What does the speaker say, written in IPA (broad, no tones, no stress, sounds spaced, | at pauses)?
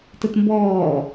t ə t m b ɔː